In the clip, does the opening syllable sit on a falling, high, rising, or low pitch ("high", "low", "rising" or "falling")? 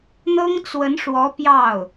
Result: high